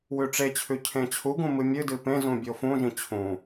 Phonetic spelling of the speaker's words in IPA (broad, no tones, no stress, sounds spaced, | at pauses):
w ʉ ʈ͡ʂ e t͡ɕʰ ʉ cʰ ẽ t͡ɕʰ u ɡ ũ m ɨ mʲ ɨ d ɨ p ẽ z ũ bʲ o f ũ ʒ ĩ t͡ɕʰ ũ